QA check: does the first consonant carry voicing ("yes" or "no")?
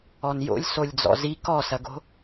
yes